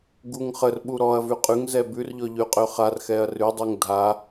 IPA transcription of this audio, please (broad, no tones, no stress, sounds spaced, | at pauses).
ɡ u ŋ χ ə r ɓ u ɾ ɔ ɐ̯ v ʉ qʼ ʉ ŋ z ɛ b ʉ r ʎ ɔ ʎ ʉ qʼ ø χ a r x ɛ ɐ̯ r ʉ dˤ u ŋ dʱ a